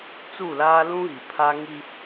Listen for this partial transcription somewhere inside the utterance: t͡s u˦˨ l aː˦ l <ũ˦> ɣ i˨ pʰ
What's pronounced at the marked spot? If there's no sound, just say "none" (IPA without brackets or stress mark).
ũ˦